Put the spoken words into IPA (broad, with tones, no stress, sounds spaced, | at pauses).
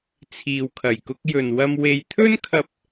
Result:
t͡sʰ iː˨ w kʰ ɐ˨˩ j k ʊ˧ k̚ j ɵ˨ n w ɐ˧ m w e˧ j t̪ʰ ɵ˥ n kʰ ɐ˧ p̚